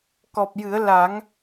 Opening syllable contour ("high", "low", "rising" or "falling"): low